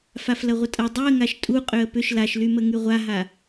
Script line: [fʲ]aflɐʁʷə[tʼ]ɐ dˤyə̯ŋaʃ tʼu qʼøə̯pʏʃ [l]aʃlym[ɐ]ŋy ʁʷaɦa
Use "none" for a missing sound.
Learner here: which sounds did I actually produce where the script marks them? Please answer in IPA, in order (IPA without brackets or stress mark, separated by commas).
f, tʼ, l, ə